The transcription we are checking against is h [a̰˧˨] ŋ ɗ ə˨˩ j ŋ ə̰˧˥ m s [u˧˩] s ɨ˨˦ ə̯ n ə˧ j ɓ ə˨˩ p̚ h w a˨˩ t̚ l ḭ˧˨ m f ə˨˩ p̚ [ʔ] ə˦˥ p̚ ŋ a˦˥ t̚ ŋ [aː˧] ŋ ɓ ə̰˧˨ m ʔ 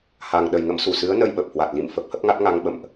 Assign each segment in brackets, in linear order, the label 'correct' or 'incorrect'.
incorrect: a˨˩, correct, incorrect: h, incorrect: a˧

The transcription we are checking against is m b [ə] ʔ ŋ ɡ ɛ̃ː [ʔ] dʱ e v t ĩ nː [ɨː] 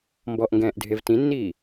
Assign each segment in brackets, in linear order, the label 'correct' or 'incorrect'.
incorrect: ɔ, correct, incorrect: iː

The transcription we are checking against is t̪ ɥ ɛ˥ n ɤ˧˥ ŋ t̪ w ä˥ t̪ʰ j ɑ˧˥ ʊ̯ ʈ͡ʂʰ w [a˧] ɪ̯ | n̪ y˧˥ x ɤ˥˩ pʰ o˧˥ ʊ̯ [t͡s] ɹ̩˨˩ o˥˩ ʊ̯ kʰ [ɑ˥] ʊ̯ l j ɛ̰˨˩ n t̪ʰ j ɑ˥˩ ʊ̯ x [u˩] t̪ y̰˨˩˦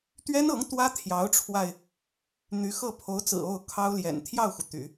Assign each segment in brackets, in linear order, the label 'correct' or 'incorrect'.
correct, correct, correct, correct

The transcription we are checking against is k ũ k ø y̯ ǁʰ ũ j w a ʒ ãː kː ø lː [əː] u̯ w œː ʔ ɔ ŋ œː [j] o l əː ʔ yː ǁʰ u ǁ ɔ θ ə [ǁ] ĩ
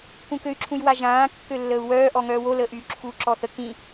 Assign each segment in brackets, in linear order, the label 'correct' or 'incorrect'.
correct, incorrect: w, incorrect: k

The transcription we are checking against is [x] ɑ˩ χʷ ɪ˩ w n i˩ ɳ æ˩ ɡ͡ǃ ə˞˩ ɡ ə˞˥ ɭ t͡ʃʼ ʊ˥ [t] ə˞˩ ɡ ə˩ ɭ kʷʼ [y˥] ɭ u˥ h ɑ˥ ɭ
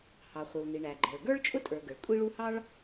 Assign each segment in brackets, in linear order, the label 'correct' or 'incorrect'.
incorrect: h, incorrect: tʼ, incorrect: i˥

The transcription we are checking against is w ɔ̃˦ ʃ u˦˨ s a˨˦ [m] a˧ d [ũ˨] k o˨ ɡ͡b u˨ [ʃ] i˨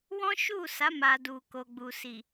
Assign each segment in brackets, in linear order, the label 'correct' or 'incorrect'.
correct, incorrect: u˨, incorrect: s

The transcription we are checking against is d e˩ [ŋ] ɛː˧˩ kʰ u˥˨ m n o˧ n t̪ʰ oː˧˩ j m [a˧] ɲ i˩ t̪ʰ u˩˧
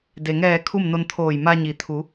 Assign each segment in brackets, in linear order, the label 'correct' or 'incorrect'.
correct, correct

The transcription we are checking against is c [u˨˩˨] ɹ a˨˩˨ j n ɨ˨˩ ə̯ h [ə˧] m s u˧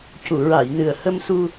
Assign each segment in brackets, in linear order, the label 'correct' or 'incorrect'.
correct, correct

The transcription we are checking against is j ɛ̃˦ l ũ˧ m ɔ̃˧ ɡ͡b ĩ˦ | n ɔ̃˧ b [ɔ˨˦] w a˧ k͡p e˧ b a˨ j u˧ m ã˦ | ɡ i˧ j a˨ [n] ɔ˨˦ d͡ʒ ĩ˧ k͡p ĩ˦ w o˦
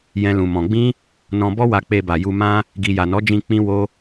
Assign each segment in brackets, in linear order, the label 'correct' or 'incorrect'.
incorrect: ɔ˦, correct

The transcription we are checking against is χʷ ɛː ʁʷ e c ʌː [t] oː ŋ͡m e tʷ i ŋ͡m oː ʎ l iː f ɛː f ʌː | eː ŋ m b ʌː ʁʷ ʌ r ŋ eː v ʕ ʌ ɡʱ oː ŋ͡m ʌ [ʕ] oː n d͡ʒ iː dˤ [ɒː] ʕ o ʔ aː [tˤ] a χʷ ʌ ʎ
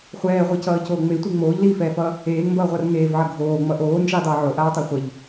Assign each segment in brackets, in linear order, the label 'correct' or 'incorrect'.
incorrect: c, incorrect: ʔ, incorrect: ʌː, correct

